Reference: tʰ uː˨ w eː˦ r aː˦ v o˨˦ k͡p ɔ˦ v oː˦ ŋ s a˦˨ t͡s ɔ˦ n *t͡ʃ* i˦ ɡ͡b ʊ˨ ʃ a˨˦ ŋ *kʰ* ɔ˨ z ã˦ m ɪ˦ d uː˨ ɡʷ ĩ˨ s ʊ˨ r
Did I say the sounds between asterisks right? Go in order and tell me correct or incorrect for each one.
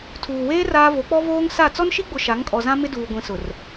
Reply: incorrect: ʃ, incorrect: kʼ

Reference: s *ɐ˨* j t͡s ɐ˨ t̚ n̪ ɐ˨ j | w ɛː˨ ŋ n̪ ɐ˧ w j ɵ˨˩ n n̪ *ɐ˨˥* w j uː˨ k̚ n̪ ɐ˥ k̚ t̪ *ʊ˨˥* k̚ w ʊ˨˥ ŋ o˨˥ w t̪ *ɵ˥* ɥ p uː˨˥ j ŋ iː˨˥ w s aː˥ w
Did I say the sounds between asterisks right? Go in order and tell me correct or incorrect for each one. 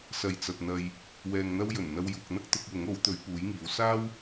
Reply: correct, incorrect: ɐ˧, correct, incorrect: ɵ˨˧

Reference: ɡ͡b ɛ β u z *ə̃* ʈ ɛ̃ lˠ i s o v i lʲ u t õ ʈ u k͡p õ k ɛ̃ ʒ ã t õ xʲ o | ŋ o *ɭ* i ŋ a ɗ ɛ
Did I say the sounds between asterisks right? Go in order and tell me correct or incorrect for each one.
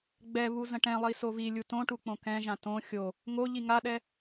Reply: correct, incorrect: ʎ

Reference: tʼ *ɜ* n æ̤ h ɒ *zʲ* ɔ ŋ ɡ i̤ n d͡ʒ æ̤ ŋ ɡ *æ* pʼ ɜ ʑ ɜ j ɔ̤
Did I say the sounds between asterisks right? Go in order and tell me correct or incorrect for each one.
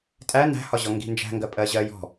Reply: incorrect: æ, incorrect: ʑ, incorrect: ɜ

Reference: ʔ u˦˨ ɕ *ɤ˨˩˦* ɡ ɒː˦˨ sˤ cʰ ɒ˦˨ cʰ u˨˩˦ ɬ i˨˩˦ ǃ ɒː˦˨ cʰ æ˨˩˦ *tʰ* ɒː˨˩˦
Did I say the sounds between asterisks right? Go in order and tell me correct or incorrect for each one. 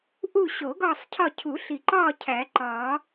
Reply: incorrect: o˨˩˦, incorrect: ǃ

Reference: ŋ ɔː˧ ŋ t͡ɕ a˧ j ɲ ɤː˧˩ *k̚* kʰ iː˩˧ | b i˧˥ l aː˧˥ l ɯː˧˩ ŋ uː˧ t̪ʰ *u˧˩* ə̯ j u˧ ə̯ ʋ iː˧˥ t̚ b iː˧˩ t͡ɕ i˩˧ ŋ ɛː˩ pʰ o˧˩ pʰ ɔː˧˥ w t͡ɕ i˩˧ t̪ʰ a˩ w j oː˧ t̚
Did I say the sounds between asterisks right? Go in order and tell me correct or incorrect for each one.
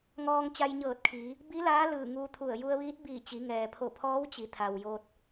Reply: incorrect: t̚, correct

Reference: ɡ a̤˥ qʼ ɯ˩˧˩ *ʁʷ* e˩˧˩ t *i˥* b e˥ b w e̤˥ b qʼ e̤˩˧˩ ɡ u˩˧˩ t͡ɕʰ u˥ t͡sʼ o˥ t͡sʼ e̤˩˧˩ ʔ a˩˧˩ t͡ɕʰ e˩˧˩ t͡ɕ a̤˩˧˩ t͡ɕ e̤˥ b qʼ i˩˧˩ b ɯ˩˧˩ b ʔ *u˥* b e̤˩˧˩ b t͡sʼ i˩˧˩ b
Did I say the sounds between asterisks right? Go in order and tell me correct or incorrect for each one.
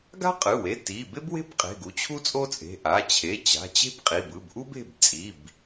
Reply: incorrect: w, incorrect: i˩˧˩, correct

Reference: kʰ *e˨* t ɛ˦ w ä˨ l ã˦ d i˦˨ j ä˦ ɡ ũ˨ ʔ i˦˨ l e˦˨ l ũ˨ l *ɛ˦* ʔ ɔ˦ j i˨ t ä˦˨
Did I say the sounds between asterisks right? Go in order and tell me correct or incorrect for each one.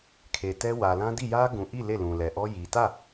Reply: correct, incorrect: ɛ˨

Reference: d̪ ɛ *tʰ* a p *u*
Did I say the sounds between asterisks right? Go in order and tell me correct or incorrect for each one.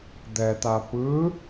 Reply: incorrect: t̪, incorrect: ɯ

